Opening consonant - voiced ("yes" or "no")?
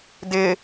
yes